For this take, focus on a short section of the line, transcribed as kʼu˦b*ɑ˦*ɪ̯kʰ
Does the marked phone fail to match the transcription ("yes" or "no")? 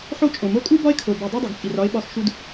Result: yes